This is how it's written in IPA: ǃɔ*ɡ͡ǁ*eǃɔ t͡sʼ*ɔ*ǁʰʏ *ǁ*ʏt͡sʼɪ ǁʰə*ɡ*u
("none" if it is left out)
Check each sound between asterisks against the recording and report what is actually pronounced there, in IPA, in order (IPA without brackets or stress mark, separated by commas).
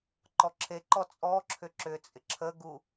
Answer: ǁʰ, ɔ, ǁ, ɡ